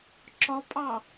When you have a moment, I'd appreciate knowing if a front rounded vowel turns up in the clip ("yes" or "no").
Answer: no